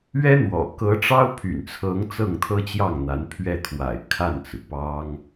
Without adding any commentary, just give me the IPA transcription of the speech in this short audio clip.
ɥ ɛ˥ n̪ w ɔ̰˨˩ k ɤ˧˥ ʈ͡ʂ ɑ˥ ʊ̯ pʰ y̰˨˩ n t͡sʰ ɤ˧˥ ŋ t͡s ɤ˥˩ ŋ t̪ʰ ɤ˥ t͡ɕ j ɑ˥˩ ŋ n̪ a˧˥ n pʰ ɥ ɛ˥˩ t̪ʰ w a̰˨˩ ɪ̯ kʰ a˥˩ n t͡s ɹ̩˩ p ɑ˥ ŋ

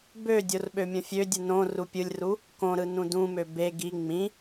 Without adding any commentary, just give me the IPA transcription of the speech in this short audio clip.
b ø dʲ o r ɓ ø mʲ õ fʲ ø dʲ ɯ n õ r u pʲ ɯ lʲ r u | k õ ɾ ɯ n ũ d ũ m ø b e ɡ i ŋ͡m ĩ

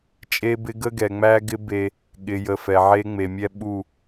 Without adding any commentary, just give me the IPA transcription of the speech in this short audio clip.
t͡ʃʼ e˦ b ɪ˦ ɡ ə˦ ɡ ɛ˨ ŋ͡m æ˦ ɡ ɪ˦ b e˦ | ɠ ɪ˨ j ə˨ f ɛ˨ ʕ e˦ ŋ͡m e˨ mʲ ɛ˦ ɓ u˦˨

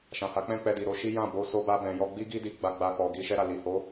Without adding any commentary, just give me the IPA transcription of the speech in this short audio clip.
ʃ ã˨ h a˨˦ k͡p ɛ̃˦ k͡p ɛ˧ d i˨ ɾ o˧ ʃ i˦ j ã˦˨ b o˨˦ s o˦ b a˦ b ɛ̃˧ j ɔ˧ ɡ͡b i˦ ɡ i˦ d i˧ ɡ͡b a˦ ɡ͡b a˦ k͡p ɔ˧ ɡ i˧ ʃ ɛ˦ ɾ a˦˨ l i˨ h o˨˦

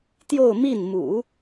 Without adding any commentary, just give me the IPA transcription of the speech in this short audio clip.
t̪ j o˥˧ ʊ̯ m i˥˩ n m ṵ˨˩˦

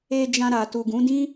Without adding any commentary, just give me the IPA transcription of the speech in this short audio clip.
e˧ d͡ʒ ã˧ ɾ a˨ t u˨ ɡ ũ˨˦ d ĩ˦

